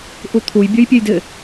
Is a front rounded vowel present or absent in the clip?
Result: present